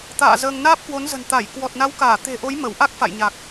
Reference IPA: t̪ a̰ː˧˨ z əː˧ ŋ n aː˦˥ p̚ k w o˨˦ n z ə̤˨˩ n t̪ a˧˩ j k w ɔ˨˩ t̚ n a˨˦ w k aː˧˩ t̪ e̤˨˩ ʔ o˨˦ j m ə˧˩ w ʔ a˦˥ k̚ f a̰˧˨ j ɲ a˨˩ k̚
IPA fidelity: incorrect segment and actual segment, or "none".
none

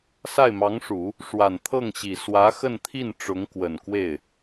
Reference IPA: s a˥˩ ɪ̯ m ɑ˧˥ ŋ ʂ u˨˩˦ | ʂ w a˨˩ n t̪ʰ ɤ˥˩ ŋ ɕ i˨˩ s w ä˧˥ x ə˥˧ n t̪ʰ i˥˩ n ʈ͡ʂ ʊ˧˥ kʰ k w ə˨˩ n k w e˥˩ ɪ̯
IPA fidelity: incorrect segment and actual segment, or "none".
kʰ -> ŋ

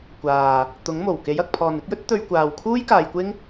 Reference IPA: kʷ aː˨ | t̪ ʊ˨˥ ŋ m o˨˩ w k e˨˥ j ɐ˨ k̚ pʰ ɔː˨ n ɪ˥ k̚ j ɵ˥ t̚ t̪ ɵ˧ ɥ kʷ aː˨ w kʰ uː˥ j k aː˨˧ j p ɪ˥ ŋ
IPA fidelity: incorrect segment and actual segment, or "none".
p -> kʷ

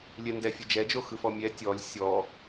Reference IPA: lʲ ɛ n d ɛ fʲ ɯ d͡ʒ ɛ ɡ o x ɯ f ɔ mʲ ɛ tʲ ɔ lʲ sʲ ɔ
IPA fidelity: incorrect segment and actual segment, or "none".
ɡ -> d͡ʒ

